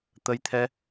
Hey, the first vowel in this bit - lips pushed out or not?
no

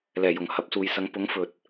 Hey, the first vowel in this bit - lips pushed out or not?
no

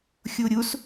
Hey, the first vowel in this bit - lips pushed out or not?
yes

